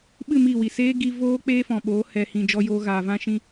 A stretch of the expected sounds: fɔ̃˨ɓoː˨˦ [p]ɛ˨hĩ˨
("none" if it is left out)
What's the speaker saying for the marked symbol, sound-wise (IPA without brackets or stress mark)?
h